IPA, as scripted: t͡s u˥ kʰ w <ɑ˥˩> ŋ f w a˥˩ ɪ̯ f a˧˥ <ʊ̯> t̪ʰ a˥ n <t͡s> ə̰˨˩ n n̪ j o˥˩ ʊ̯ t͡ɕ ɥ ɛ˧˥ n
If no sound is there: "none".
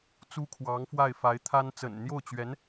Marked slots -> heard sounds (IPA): ɑ˧˥, ɪ̯, t͡s

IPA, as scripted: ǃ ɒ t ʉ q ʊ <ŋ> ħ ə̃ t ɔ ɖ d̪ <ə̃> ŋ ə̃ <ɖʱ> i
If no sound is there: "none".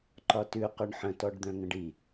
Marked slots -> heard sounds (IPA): ɳ, œ̃, ɖ

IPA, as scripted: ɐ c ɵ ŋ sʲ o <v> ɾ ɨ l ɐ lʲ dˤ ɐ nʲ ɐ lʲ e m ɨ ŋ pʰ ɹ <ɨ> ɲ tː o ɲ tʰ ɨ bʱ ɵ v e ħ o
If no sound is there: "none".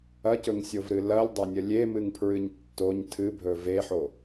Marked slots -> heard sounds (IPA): v, ɨ

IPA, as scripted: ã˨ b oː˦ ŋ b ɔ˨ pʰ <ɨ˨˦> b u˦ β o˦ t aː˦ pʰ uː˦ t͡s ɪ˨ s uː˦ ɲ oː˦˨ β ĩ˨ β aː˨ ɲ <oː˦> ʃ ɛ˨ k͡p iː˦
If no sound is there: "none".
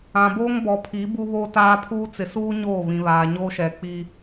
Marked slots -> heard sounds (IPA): i˨˦, oː˦

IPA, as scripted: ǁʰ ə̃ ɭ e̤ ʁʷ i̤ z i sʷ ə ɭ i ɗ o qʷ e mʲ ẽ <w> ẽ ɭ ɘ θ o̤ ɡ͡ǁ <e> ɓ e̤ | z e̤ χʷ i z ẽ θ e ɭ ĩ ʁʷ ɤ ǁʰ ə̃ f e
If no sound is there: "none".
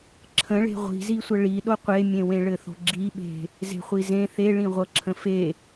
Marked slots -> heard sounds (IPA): w, i

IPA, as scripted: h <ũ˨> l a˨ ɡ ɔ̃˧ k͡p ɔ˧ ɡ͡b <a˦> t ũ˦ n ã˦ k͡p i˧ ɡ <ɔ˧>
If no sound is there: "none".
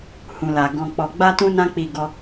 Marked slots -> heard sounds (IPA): ũ˨, a˦, ɔ˧

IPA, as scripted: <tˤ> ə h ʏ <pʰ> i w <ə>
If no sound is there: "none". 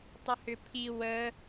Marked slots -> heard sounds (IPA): tˤ, pʰ, ə

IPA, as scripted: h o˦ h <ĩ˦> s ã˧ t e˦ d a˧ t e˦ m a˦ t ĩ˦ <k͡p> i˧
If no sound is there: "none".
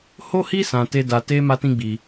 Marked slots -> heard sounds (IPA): i˦, ɡ͡b

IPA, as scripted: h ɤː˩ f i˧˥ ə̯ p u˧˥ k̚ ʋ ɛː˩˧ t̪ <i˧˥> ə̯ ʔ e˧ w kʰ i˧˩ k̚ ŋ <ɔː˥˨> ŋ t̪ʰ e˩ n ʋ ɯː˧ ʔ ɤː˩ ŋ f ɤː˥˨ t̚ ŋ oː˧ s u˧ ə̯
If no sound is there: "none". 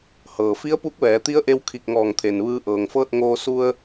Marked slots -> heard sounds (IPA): i˧˥, ɔː˧˩

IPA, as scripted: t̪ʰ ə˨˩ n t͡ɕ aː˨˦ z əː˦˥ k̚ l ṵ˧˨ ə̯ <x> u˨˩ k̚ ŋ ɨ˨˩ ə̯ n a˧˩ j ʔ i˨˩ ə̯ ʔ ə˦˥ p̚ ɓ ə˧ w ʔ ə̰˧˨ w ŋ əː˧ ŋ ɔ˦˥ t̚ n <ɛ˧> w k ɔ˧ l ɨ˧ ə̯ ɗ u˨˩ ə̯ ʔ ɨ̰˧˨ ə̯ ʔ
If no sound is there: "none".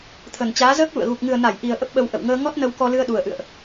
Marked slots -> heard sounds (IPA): ɣ, ə˧

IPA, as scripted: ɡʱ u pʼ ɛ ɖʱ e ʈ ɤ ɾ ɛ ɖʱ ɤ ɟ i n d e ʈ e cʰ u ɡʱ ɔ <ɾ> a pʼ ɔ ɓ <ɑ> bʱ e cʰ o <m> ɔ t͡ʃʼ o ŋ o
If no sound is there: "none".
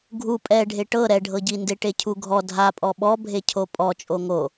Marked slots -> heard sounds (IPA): dʱ, ɔ, pʼ

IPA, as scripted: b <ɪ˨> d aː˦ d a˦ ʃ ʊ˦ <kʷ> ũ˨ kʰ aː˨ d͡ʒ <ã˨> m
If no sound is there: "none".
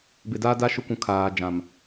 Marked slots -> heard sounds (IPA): ɪ˨, kʷ, ã˨

